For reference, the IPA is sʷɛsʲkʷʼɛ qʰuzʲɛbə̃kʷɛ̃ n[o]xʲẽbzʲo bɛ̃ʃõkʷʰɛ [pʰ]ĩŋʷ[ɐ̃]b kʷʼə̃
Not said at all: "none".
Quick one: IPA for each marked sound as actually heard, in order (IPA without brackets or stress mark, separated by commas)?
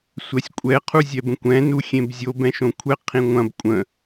u, qʰ, ɐ̃